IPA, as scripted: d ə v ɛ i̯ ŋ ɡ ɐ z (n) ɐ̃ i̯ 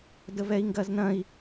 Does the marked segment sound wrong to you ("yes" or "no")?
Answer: no